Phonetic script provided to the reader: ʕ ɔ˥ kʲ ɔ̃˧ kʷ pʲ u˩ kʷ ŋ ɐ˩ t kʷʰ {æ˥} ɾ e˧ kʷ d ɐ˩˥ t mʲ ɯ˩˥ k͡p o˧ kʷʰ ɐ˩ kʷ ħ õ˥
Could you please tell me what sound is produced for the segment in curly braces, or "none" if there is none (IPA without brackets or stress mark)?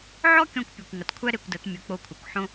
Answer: æ˥